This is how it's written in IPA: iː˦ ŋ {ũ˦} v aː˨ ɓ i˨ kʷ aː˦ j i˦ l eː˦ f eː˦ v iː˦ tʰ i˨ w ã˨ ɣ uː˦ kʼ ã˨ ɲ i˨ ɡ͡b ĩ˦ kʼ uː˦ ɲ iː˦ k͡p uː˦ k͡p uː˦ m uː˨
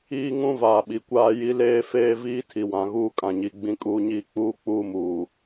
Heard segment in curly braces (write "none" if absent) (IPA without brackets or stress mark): ũ˦